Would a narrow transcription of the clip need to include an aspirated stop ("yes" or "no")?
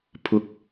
yes